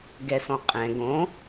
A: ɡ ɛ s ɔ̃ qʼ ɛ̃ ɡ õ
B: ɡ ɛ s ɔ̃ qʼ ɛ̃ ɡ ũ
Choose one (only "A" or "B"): A